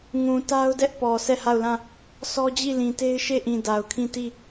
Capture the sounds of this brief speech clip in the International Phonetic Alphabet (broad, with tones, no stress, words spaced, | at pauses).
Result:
ŋũ˨ ta˦ʊ̯dɛ˦ʔ pɔ˨ sʰɛ˦˨ha˦˨ʊ̯lã˦˨ | sʰɔ˦d͡ʑi˦˨lĩ˨te˦ɪ̯ ʃe˦˨ʔĩ˨ da˨ʊ̯kʰĩ˦˨ti˦˨